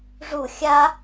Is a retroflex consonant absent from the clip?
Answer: no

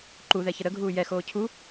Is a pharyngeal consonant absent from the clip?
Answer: yes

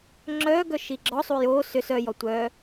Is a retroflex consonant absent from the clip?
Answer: yes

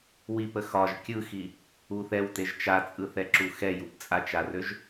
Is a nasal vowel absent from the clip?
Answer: yes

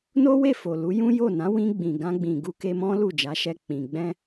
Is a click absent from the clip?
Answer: yes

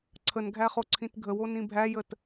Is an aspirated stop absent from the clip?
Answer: no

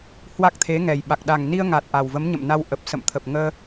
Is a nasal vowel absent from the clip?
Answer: yes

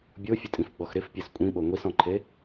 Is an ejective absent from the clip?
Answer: no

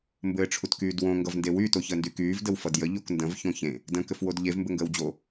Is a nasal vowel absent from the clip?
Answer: no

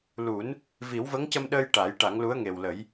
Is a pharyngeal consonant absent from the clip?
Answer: yes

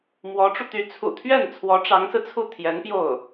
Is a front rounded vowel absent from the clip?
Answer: no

